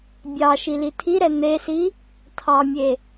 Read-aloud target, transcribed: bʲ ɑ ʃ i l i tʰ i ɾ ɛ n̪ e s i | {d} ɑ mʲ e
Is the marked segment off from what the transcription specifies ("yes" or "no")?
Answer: yes